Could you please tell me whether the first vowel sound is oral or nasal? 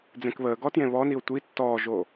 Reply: nasal